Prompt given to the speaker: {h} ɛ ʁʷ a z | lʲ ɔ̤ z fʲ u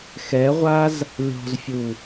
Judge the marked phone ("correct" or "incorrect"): incorrect